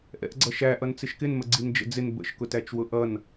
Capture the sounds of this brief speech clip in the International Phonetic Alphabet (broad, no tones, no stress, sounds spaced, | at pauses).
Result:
ʔ ɛ̰ ʔ ɡ͡ǀ ʌ ʃ æ ʔ ʌ n t͡s ɪ ʃ k ɪ n m ə ɡ͡ǀ i n d͡ʒ ə̰ d͡z ɪ n b ə̰ ʃ k ʊ t æ t͡ʃ w ʊ ʔ ʌ n